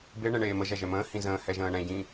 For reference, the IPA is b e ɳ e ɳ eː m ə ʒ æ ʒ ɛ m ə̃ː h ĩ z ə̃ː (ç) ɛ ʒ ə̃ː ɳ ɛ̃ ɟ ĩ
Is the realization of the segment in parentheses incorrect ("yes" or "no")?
yes